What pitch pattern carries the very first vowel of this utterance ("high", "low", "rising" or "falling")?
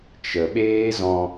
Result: low